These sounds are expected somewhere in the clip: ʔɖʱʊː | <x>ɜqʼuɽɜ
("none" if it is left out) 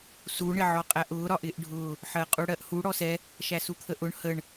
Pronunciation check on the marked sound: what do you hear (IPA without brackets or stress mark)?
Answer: ħ